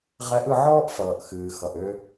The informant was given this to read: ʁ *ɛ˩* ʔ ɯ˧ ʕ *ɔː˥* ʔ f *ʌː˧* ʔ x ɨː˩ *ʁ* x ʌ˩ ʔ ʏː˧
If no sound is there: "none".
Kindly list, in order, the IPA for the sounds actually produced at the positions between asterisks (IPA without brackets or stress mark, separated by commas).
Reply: ɛ˧˥, ɔː˥, ʌː˩, none